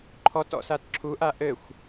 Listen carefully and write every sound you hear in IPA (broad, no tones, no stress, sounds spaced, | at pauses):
ǃʰ ɔ t ɔ̰ s a t ǁʰ u ʔ a ʔ ɘ xʷ